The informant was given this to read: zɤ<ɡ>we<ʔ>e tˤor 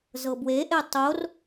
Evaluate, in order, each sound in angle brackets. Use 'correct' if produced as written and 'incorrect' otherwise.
incorrect: b, correct

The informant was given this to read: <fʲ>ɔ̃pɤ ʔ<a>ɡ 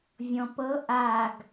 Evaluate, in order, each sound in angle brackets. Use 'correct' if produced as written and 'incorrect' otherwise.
incorrect: vʲ, correct

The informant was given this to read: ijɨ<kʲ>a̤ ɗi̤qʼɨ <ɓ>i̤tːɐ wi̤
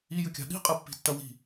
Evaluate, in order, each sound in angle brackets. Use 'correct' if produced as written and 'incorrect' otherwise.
correct, incorrect: pː

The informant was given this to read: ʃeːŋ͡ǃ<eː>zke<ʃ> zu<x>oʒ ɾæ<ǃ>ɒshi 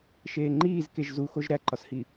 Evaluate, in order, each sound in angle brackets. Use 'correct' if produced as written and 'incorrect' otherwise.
incorrect: iː, incorrect: ʒ, correct, correct

